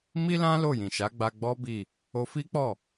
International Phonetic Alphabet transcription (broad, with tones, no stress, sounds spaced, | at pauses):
m i˦ l ã˦ l o˦˨ j ĩ˨ ʃ a˨˦ ɡ͡b a˧ ɡ͡b ɔ˦ b i˦˨ | o˧ f i˦ k͡p ɔ˦˨